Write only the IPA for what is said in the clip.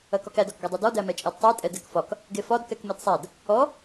ɐkɒkæd ɒkɡɛdˤɛdɔ dæmɛt͡ʃʼedtˤɛ tʼɛdɛkfɒk | ɡefɒd kɛkmedsˤæd | ɔ

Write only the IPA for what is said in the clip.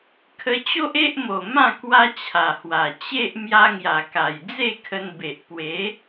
kʰə˧t͡ɕo˦ʔe˦ʔmo˨˩ mã˥˧ kwa˦t͡ɕʰa˨˩hwa˨˩ t͡ɕe˦ʔ mja˧ŋja˨˩ka˨˩j d͡ze˥˧kʰə˧nbe˨ʔ pwe˨˦

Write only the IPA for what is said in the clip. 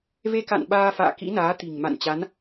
ve˧ka̰˧˨n ɓaː˧fa̰ː˧˨ kḭ˧˥naː˨˦ t̪i̤˨˩ŋma̰˧˨n t͡ɕa˨˦n

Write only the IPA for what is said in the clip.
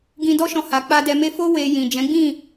ɡĩ˧dɔ˦ʃɔ̃˧ha˨ k͡pa˧ dɛ˧me˦ fo˦ we˧jĩ˨ d͡ʒɛ̃˨˦ɡ͡bĩ˦˨

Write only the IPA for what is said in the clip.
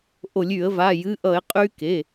ʔo˧˩˧lʲy˧˩˧ə̯ va˩˧˩jɨ˩˧˩ʔʌ˧˩˧ɪ̯ qʼy˧ ke˩˧˩

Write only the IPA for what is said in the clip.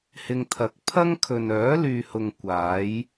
hɪ˧ŋt̪ʰɐ˨˥k̚ pʰɐ˥ŋ kʰɵ˨nœː˨˥lyː˨hʊ˨ŋ kʷaː˨˥j

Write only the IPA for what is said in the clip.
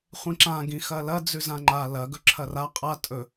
χʷĩǁã ɡĩxɐlɐ d͡zʉzãŋ͡ǃa lɐ ɡɵǁʰɐra qʼa tʼɵ

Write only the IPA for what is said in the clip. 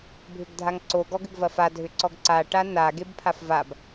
bʱʏɡdʱaŋǀo ɡɔɡʏɡvɐfa dʱʏǀɔɡǀa ʈana ɡebpʰafvab

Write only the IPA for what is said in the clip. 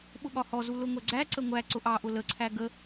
ɓʊɠɒhɔzu lʊŋʷɛɡ͡ǀæǀə ŋʷæ ǀʊʔɑʔʊ ləǀʰæ ɡə

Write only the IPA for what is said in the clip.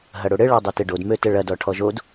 ɦɐɽoɽɘ ɭɔdˤøtɘɖod møtəɭɐd ɔʈʰɔʒod

